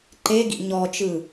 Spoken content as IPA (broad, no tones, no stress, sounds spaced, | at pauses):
ǃ e ɡ ḭ ɲ ɔ t͡ʃ ɯ